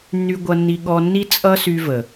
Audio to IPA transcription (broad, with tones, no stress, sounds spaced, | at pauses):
nː y˧ ɡʷ ʌ˧ nː i˧ ɠ ɔ˧ nː i˦ t͡sʼ ʌ˦ s y˧ v ə˨